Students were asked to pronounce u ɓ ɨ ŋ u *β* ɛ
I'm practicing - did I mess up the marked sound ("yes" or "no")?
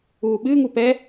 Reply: yes